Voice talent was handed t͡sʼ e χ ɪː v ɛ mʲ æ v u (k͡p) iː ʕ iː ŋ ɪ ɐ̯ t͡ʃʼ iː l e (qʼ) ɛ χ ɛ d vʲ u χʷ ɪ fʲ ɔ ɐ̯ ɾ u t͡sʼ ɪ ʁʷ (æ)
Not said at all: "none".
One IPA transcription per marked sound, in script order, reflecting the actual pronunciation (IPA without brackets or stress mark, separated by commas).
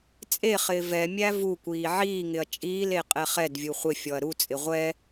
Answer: kʷ, qʼ, ɛ